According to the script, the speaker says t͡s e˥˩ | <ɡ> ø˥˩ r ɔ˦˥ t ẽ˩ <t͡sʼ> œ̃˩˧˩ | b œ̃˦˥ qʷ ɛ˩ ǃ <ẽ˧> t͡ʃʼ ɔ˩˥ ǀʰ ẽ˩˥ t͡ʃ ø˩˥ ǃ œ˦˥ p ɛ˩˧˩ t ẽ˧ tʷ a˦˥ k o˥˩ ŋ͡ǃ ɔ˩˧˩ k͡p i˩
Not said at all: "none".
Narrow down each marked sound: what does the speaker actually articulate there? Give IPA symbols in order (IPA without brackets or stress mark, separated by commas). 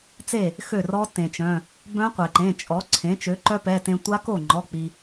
x, t͡ʃ, ẽ˩˧˩